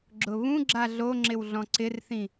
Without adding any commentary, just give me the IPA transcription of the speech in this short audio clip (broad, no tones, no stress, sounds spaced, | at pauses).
ɡ͡ǁ ʊ β ũ ɡ͡ǁ a ɮ o ŋ͡ǁ ɪ w ɮ ɔ̃ ǀ ɪ r θ ĩ